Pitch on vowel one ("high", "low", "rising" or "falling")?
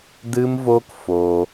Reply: high